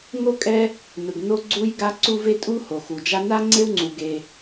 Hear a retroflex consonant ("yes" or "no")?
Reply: no